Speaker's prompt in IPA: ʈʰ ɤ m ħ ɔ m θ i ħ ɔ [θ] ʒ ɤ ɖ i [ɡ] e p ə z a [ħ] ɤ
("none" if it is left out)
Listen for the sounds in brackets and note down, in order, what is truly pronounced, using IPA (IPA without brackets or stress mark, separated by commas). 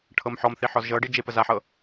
z, d͡ʒ, ħ